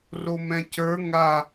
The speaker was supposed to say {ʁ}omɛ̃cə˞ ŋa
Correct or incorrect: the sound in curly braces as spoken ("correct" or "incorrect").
incorrect